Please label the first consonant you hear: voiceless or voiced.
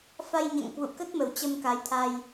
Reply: voiceless